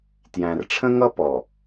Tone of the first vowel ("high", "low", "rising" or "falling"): low